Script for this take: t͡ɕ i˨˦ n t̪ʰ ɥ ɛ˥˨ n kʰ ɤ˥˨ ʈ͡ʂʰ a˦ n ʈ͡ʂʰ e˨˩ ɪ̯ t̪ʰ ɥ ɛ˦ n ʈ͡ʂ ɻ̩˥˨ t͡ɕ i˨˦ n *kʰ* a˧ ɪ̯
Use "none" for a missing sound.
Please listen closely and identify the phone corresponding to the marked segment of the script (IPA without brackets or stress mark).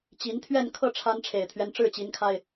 kʰ